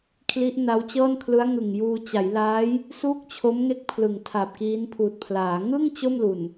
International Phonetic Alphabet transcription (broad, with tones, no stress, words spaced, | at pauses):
kʰli˦˥ʔna˦˥wt͡ɕɤː˥˩nkʰlɯ˦˥a̯ ŋɯ˨˩ŋjuː˧ t͡ɕa˩˦jlaː˦˥j | suː˥˩k̚t͡ɕʰo˦˥mŋe˦˥k̚ pʰlɯ˨˩ŋtʰa˨˩p̚kiː˦˥npʰuː˨˩t̚ pʰlaː˩˦ ŋɯ˥˩ŋ t͡ɕo˥˩mlu˨˩n